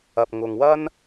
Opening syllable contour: low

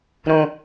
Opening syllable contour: low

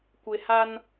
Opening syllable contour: low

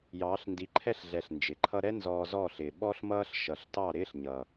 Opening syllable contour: rising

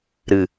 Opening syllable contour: low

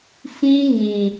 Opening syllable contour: high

